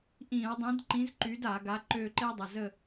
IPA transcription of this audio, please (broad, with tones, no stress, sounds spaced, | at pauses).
ʔ ĩ˧˩˧ ɐ̯ dˤ ĩ˨˥ d ǃ ĩ˨˥ z ǃ y˨˥ d a˧˩˧ ɡ a˨˥ ǃ ø˦˨ ǃ e˦ dˤ ɐ˩˧˩ z ə˦˨